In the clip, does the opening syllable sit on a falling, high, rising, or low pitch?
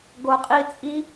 low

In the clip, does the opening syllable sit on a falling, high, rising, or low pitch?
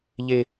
high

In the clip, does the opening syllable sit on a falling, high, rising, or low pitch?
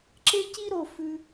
high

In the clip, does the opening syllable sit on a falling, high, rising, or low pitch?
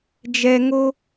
high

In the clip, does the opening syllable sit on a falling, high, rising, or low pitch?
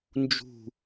falling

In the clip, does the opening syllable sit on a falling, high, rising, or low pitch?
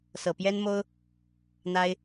low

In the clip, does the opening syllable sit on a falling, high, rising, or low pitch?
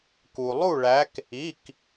low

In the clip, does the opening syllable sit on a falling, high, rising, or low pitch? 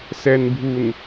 low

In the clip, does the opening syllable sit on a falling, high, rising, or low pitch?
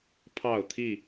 falling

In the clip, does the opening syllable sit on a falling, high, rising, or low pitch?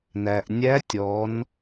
low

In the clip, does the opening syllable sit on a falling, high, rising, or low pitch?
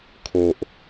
low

